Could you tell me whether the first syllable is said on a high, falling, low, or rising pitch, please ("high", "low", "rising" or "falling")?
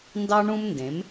high